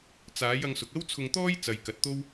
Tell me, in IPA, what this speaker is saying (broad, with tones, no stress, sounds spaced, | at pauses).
t͡s aː˨˥ j ɐ˧ ŋ s ʊ˨ k̚ ɐ˥ w t͡sʰ ʊ˧ ŋ t̪ ɔː˥ j t͡s ɐ˨ j k ɐ˨˥ t̚ t̪ o˥ w